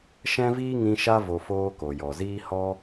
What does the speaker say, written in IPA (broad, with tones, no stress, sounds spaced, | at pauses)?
ʃ ɛ̃˦ v iː˦ ŋ ĩ˧ ʃ a˦ v o˧ f oː˦ k o˨ j ɔ˨ z iː˦ h ɔ˦